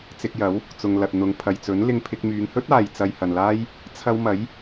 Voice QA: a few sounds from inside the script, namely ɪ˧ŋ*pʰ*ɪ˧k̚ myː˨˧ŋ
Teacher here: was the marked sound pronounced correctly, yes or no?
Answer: yes